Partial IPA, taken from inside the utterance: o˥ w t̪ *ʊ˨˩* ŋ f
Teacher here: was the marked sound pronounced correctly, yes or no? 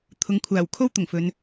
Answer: yes